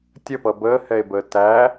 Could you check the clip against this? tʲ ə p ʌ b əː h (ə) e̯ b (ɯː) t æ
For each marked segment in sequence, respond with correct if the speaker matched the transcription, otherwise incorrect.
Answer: incorrect, incorrect

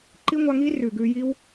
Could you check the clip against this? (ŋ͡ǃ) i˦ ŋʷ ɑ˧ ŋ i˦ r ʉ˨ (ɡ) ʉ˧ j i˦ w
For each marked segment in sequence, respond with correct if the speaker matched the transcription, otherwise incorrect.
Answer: incorrect, correct

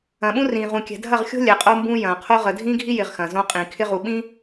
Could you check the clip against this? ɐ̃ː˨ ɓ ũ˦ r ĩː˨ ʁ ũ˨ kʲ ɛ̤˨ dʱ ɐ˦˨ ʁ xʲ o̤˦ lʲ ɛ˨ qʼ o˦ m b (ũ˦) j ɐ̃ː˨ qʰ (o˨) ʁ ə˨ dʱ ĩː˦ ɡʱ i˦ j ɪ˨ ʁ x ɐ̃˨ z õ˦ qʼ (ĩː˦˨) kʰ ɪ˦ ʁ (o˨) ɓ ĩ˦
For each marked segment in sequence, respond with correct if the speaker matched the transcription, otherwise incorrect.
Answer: correct, incorrect, incorrect, incorrect

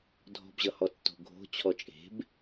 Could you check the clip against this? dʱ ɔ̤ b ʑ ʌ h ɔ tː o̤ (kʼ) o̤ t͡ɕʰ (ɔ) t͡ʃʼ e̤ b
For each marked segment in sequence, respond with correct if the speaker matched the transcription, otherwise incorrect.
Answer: incorrect, correct

